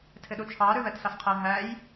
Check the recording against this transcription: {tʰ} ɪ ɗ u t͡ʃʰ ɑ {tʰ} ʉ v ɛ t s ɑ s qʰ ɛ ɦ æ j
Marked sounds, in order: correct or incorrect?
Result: correct, incorrect: ɾ

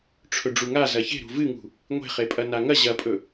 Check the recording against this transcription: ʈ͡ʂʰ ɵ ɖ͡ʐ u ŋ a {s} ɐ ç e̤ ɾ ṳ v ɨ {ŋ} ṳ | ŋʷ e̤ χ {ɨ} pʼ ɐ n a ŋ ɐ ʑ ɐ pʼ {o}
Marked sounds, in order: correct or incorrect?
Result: incorrect: z, correct, incorrect: e, incorrect: ɵ

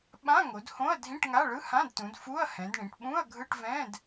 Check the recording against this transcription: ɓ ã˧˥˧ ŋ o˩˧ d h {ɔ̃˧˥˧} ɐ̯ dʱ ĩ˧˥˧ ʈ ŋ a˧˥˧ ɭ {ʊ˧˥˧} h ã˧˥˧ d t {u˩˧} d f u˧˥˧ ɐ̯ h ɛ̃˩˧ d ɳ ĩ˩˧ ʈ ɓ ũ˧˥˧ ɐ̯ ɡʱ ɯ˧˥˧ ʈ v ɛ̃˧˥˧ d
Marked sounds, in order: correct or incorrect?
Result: incorrect: õ˧˥˧, incorrect: ɯ˧˥˧, incorrect: ũ˩˧

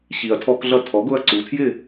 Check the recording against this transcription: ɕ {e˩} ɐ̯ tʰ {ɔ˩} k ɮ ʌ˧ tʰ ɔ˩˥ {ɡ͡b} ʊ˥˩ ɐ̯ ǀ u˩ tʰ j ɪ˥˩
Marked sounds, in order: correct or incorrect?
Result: incorrect: i˩, incorrect: ɔ˧, incorrect: ɡ

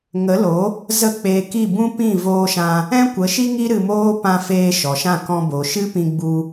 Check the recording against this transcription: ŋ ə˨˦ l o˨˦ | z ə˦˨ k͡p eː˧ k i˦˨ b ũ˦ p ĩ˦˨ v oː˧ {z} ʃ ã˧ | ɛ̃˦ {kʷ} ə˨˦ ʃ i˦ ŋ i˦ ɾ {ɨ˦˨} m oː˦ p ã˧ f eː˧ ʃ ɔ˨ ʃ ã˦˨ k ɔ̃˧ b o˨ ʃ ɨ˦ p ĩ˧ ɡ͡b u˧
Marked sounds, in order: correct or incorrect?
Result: incorrect: none, correct, incorrect: ɨ˧

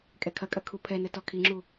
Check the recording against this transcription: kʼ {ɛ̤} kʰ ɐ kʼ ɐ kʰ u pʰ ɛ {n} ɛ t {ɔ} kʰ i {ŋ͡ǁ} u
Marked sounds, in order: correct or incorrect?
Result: incorrect: ɛ, correct, correct, correct

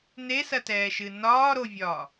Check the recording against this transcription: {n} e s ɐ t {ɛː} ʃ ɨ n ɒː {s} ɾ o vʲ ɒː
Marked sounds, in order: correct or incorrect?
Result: correct, correct, incorrect: none

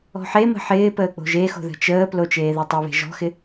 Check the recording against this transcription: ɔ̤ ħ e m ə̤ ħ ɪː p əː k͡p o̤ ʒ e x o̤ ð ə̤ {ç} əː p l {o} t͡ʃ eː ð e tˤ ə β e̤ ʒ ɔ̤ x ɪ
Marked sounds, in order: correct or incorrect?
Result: incorrect: t͡ʃ, correct

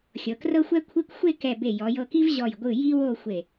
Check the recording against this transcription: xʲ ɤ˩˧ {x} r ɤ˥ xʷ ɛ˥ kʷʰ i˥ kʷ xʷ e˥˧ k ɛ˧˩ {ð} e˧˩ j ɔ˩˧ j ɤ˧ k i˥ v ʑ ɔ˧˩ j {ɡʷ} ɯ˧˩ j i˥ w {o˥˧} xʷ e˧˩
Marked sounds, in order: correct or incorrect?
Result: incorrect: k, incorrect: b, correct, correct

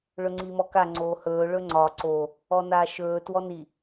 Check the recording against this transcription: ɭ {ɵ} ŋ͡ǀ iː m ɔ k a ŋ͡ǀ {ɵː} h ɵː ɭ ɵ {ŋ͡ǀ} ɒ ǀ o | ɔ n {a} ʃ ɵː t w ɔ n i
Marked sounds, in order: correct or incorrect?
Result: correct, incorrect: oː, correct, incorrect: aː

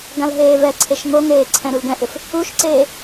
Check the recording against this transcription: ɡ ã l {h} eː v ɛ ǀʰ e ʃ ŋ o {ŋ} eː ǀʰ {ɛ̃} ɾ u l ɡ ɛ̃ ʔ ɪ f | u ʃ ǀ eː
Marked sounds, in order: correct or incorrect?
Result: incorrect: ɦ, correct, correct

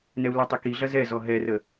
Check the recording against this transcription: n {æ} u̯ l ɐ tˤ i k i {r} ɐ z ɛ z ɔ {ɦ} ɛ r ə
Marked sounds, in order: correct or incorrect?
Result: incorrect: ɛ, incorrect: ɮ, correct

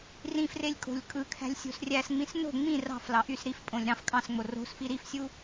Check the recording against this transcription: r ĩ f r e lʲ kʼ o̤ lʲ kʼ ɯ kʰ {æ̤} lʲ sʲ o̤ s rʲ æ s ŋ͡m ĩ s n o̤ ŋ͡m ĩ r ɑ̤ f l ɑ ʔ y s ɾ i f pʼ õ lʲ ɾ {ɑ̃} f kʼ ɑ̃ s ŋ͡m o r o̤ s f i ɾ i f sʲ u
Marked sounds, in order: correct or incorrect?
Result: correct, correct

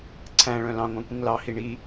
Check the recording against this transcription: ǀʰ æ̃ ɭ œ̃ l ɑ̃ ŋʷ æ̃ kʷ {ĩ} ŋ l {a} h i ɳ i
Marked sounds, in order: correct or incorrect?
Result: correct, incorrect: ɑ

